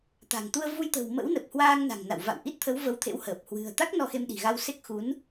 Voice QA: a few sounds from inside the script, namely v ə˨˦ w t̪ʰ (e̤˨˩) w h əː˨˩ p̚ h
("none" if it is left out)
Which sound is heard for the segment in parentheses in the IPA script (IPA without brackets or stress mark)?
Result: ḛ˧˥